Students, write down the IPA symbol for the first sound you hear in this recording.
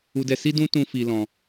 u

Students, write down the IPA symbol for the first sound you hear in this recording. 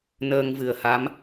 n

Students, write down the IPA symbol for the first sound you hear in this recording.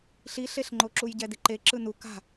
ɬ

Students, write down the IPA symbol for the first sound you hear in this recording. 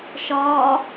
ʃ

